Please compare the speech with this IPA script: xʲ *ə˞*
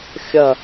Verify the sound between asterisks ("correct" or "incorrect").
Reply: incorrect